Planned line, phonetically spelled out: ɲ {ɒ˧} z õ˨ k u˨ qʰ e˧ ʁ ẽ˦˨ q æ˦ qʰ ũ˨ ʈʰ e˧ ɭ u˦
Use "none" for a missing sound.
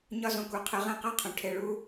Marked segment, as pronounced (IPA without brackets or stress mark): ɒ˧